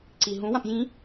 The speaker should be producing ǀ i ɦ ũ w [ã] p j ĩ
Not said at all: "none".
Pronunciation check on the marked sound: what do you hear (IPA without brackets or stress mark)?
ã